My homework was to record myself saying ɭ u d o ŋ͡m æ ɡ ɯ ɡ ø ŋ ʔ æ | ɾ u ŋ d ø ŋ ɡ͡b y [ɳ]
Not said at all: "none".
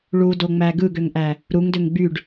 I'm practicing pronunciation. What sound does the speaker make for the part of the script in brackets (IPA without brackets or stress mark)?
ɖ